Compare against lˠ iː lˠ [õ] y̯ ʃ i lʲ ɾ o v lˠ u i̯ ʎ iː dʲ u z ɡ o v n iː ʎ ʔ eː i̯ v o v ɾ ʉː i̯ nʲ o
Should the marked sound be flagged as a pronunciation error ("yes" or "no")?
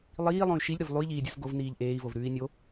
no